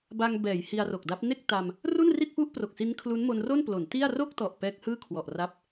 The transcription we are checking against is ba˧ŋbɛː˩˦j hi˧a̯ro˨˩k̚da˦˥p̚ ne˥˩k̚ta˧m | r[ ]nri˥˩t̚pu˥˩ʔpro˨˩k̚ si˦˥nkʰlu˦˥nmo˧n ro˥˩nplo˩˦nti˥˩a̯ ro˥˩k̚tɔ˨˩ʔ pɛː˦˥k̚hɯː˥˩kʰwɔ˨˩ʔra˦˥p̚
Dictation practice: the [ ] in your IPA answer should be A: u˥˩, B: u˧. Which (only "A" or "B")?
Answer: A